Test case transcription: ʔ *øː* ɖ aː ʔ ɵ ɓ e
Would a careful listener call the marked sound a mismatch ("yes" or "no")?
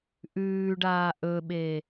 yes